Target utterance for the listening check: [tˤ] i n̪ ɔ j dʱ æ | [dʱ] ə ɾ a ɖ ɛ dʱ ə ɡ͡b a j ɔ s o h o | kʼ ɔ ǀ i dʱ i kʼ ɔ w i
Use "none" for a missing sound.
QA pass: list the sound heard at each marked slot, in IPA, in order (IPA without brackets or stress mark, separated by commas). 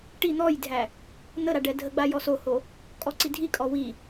ʈ, n̪